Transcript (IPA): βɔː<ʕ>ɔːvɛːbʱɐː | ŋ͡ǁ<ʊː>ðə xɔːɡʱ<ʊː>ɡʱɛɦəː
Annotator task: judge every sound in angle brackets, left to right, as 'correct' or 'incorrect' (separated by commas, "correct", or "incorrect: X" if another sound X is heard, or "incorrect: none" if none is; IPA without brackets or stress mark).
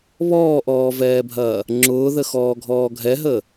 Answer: incorrect: ʔ, correct, incorrect: ɔː